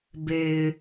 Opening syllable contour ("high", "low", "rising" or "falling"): low